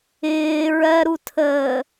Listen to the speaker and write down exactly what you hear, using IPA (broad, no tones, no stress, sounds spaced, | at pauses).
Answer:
ɪː ɹ ɜ ɾ u tʰ əː